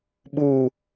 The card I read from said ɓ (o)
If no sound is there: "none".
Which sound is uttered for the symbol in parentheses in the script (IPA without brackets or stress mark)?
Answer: u